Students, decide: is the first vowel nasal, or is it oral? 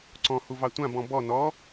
nasal